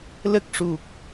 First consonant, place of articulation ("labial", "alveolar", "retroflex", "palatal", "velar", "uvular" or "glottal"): alveolar